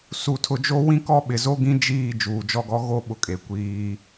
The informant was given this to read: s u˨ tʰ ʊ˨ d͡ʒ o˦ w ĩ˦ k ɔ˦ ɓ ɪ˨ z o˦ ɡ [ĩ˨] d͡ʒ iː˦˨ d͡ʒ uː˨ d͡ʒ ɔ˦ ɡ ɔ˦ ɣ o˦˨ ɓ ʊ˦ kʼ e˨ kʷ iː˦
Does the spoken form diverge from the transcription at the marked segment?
yes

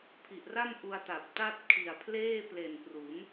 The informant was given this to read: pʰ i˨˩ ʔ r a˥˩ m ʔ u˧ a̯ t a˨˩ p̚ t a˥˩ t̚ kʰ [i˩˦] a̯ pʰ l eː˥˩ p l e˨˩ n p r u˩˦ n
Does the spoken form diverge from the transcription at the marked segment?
yes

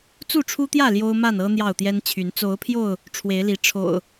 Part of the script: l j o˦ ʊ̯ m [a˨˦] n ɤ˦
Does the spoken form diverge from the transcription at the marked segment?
yes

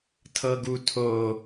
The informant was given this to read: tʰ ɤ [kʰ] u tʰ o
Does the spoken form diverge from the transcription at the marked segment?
yes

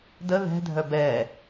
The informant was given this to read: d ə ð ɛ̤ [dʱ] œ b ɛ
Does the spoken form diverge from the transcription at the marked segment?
no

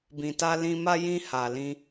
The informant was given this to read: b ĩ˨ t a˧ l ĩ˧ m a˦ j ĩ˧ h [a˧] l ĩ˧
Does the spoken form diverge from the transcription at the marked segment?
yes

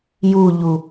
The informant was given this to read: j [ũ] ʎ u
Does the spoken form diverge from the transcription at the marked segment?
yes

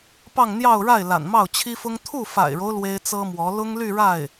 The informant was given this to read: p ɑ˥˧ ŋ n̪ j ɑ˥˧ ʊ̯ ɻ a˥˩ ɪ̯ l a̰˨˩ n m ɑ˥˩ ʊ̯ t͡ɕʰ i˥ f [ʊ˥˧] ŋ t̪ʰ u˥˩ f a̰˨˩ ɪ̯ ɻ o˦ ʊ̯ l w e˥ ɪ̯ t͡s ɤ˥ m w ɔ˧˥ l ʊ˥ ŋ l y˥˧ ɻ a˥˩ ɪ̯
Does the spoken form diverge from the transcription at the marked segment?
yes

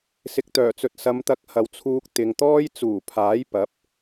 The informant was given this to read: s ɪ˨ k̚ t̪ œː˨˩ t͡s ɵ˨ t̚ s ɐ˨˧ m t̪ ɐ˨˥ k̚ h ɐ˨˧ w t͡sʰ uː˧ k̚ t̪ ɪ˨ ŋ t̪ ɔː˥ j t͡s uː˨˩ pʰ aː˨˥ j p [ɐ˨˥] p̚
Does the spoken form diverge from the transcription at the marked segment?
no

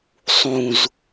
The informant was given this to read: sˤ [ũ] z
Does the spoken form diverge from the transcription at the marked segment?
no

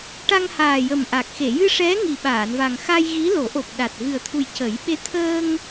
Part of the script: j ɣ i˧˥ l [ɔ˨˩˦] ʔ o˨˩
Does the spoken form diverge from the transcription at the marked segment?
yes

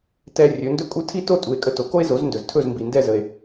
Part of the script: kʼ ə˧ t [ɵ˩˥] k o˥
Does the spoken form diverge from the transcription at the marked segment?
yes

